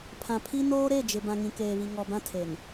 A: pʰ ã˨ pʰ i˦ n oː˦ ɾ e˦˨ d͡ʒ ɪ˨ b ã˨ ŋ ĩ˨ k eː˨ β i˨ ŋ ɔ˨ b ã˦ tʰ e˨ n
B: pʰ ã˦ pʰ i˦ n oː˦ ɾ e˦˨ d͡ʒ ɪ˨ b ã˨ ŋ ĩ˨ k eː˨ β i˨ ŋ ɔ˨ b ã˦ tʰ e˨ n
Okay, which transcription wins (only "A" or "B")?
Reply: A